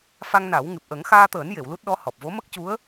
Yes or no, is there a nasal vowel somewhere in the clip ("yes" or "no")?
no